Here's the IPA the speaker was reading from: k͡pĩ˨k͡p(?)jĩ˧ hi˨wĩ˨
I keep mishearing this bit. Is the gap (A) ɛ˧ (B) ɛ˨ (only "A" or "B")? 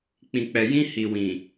B